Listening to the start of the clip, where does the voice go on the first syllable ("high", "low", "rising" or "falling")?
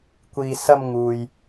low